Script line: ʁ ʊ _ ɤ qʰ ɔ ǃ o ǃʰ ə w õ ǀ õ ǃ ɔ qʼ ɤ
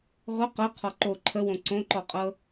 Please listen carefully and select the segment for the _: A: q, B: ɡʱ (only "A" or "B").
A